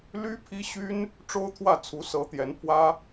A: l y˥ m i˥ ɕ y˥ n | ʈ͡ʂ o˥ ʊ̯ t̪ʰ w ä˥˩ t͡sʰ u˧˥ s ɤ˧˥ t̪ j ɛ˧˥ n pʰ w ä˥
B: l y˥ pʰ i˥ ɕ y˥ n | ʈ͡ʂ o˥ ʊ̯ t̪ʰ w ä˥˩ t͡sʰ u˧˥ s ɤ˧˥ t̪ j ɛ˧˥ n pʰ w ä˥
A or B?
B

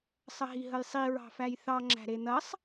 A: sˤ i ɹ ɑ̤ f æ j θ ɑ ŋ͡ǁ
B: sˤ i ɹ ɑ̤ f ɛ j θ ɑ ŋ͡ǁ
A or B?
A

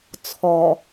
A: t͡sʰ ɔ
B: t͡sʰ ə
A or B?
A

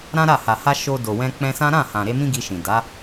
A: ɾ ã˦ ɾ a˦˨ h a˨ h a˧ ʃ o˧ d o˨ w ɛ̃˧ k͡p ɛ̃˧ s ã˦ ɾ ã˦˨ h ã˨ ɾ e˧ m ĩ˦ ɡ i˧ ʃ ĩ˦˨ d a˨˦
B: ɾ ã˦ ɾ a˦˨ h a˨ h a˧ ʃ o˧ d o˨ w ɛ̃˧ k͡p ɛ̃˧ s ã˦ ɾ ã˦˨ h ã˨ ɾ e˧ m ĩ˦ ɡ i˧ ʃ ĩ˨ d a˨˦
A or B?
B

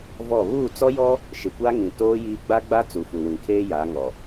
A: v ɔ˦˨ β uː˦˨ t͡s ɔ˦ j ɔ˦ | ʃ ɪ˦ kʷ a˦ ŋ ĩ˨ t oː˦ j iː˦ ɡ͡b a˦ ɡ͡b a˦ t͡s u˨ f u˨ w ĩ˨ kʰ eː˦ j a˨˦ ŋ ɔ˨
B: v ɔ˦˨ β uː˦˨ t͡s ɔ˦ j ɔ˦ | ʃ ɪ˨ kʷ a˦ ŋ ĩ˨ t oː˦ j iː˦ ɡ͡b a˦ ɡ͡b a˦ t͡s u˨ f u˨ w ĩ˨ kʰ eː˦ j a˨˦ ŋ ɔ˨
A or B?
B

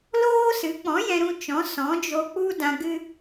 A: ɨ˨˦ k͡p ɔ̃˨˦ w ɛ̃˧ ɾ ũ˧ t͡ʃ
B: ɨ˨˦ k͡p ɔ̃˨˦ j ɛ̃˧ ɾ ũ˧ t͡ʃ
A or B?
B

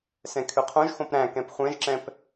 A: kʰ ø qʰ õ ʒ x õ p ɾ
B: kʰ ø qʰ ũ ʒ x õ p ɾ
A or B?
A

